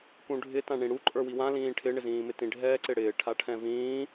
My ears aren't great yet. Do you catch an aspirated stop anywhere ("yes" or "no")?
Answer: yes